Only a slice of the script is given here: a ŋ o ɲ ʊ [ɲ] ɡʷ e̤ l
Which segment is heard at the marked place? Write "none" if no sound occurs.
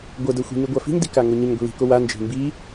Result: ɲ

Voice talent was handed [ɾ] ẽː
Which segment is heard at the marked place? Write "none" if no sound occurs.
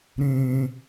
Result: ɾ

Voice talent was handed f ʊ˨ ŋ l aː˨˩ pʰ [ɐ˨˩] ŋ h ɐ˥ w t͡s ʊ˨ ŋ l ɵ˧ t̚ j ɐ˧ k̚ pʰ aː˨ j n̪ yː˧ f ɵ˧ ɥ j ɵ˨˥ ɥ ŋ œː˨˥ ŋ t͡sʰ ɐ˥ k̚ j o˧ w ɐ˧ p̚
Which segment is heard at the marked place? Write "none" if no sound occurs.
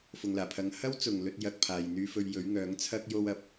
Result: ɐ˨˧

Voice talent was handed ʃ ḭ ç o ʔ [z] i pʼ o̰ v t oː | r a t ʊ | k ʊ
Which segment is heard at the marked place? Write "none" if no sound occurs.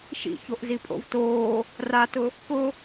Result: z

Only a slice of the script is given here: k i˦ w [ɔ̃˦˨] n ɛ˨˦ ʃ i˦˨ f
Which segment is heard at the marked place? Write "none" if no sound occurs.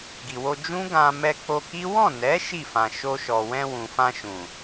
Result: ɔ̃˦˨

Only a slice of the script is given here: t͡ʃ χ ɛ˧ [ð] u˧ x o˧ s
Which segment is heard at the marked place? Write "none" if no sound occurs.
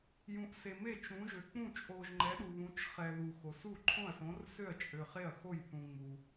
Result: ð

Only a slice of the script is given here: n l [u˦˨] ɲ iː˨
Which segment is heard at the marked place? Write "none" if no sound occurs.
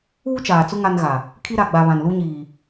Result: u˦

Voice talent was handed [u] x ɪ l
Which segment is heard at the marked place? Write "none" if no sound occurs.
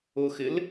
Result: ʊ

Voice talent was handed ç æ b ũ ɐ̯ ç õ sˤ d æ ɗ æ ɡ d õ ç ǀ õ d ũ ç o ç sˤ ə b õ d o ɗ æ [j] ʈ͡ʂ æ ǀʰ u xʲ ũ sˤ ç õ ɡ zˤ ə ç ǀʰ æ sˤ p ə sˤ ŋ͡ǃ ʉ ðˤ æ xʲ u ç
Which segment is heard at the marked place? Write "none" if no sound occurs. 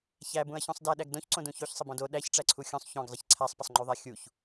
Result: ç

